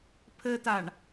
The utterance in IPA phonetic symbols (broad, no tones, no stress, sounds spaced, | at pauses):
pʰ ɘ t a ɳ